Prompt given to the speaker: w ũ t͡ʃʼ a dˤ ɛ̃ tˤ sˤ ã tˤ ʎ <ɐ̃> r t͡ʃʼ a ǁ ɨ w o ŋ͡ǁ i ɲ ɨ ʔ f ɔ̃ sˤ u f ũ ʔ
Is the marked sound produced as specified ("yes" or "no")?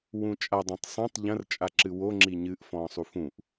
yes